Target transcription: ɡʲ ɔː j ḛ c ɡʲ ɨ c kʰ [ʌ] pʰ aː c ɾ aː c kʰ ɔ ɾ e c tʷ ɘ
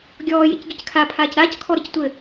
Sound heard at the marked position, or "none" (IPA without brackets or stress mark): a